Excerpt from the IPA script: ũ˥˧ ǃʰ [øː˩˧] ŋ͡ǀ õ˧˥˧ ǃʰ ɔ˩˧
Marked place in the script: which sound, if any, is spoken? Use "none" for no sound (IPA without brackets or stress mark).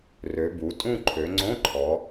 ø˩˧